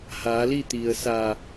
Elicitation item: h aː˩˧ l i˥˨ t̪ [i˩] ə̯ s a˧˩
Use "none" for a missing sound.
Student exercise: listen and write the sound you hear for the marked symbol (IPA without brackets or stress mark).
i˩